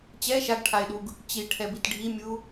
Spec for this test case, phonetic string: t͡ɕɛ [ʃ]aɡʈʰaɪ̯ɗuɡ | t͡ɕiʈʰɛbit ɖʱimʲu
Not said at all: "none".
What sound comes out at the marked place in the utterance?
ʃ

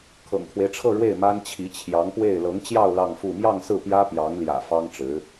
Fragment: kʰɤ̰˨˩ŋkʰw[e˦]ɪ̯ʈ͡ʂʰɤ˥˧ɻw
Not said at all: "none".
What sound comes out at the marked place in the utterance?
e˦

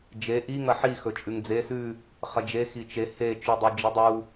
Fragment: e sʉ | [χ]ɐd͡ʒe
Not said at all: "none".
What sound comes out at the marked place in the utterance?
χ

